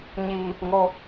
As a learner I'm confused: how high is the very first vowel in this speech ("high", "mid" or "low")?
high